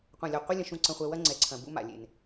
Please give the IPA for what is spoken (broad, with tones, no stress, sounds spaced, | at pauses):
qʷ ɐ̃˨ lʲ ɐ˨ qʷ ɨ˦ lʲ ɐ̃˨ ʃ ũ˨ ǀ ɐ̃˨ χʷ ɛ˨ w ɐ˦ ŋ͡ǀ ɛ˨ ǀʰ ɐ̃˨ b ṵ˦ m a̰˨ lʲ ḛ˨ n